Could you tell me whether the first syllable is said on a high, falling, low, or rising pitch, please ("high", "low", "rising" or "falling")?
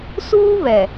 high